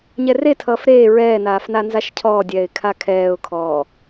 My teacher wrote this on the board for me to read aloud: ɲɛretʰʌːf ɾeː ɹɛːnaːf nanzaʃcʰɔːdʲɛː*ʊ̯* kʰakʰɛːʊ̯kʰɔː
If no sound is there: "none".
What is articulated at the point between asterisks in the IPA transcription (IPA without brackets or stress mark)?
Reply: ɪ̯